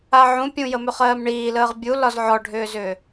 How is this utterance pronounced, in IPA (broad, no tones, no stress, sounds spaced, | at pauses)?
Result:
a ʕ ũ pʲ ũ j ə m ʏ χ ɜː m ɳ iː l əː ʁ bʲ u l ɒ z ʕ ɔ ɖʱ ʏː z ʏː